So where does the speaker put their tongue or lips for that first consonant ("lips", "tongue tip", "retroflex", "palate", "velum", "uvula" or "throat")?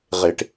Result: uvula